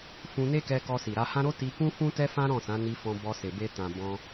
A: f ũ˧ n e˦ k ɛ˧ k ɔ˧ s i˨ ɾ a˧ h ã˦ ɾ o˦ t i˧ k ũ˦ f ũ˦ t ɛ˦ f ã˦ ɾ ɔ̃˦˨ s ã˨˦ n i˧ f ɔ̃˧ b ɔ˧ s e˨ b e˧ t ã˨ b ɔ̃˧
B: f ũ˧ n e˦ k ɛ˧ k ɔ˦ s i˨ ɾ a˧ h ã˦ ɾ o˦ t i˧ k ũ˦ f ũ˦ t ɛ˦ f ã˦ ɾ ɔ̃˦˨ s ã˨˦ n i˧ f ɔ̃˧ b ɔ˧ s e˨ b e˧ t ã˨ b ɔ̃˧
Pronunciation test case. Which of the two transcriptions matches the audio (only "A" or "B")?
A